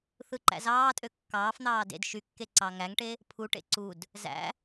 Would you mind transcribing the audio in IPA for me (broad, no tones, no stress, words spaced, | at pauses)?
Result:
θɯǃæ̰zɑːtʼø kːɑːfn̪ɑː dḛd ʃykːe ǀɑŋæŋʈe | pʰuʈḛ ǀud | zæ̰